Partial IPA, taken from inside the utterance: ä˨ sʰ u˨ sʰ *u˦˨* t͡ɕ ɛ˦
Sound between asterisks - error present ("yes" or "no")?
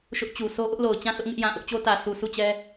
no